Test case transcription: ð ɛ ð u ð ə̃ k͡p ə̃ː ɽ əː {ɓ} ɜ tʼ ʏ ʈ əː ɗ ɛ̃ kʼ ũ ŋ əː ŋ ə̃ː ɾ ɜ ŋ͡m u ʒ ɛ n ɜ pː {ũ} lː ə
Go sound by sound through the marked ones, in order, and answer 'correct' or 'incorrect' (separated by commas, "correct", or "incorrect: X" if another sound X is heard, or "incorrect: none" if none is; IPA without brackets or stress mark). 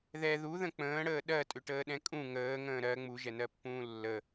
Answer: incorrect: ɗ, incorrect: ũː